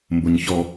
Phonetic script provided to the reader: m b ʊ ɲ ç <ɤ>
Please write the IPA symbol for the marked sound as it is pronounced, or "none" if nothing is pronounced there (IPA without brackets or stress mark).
ɔ